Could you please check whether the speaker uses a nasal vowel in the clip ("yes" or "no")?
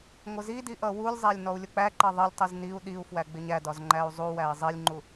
no